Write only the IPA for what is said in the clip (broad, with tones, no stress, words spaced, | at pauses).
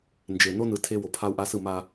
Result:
nd͡ʒe˨ no˦nɯ˨ tʰe˦ wo˨pʰa˦u̯ʔa˦sɯ˦˨ ma˦